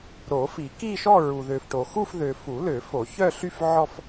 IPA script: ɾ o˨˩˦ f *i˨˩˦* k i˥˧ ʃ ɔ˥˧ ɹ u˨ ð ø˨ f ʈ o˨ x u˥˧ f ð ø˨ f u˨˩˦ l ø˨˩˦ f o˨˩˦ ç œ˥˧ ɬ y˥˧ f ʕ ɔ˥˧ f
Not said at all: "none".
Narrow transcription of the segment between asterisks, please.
i˨˩˦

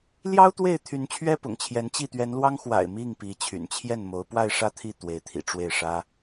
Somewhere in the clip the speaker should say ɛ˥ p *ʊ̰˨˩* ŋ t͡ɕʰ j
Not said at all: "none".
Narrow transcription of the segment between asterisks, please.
ʊ̰˨˩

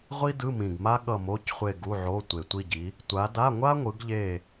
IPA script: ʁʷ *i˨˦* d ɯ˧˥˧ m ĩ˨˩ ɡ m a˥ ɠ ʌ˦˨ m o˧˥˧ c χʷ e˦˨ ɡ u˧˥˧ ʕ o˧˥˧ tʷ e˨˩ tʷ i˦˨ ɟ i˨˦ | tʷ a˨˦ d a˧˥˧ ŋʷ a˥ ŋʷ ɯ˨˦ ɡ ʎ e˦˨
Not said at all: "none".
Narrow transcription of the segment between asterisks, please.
i˥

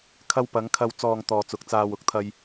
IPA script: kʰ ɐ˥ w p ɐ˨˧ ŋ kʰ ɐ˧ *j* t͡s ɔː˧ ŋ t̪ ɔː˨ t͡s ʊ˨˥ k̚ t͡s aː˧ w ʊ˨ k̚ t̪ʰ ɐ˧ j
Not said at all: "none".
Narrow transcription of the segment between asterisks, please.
w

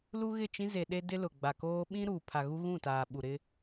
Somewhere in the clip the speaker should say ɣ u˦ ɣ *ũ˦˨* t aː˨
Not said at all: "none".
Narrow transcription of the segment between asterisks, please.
ũ˦˨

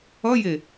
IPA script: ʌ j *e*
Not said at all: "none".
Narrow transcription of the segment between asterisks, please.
e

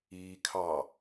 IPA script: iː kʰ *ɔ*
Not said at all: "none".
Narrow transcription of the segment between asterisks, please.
ɑ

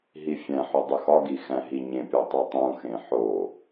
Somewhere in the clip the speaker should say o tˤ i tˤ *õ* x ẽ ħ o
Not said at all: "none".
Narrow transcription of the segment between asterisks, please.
ũ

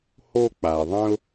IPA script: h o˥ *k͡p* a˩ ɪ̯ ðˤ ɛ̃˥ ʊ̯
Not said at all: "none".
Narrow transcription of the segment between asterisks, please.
k͡p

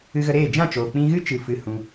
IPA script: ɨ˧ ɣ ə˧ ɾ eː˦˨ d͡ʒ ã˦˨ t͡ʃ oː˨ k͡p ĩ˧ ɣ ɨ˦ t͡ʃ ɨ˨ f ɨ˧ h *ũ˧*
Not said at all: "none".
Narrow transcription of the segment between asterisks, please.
ũ˧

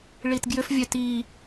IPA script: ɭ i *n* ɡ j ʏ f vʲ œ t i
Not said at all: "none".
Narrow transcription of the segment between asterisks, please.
t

